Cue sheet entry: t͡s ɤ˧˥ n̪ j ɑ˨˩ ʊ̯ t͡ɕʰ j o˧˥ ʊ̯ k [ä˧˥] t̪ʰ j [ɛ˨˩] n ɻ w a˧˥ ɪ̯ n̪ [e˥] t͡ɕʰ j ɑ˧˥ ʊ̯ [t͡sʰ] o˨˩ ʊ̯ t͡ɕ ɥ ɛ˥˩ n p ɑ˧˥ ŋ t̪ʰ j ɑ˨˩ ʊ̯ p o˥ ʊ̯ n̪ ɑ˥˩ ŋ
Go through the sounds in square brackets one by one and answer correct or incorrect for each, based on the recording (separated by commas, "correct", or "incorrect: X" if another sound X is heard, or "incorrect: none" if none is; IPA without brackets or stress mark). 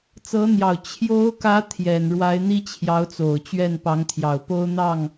correct, correct, incorrect: i˥, incorrect: t͡s